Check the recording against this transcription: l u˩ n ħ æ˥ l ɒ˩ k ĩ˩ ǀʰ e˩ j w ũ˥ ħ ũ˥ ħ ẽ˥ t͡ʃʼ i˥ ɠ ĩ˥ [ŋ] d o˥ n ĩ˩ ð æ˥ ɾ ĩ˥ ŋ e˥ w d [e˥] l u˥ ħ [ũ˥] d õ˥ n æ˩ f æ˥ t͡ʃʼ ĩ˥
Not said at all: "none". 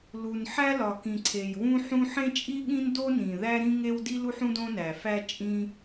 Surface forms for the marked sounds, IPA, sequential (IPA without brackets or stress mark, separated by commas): n, i˥, ũ˥